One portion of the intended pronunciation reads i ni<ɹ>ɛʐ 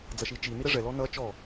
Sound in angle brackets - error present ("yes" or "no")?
yes